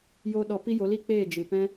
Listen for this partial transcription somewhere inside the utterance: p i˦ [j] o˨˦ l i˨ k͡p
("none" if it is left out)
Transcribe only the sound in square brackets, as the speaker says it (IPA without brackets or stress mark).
j